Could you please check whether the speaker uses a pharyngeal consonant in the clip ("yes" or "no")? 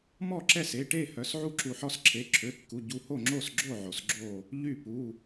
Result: yes